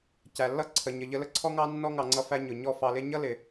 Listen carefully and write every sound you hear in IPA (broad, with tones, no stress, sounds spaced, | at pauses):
c æ˨ lː ʌ˦ ǀʰ ə˨ ɲ ə˨ ʎ ə˧ l ə˨ ǀʰ ɔ˦ ŋ ɑ˦ nː ɔ˦ ŋ ɑ˨ ŋ͡ǀ ʌ˧ f æ˧ ɲ ʊ˨ ɲ ɔ˦ f ɑ˧ l ɪ˦ ɲ ʌ˦ l ɪ˨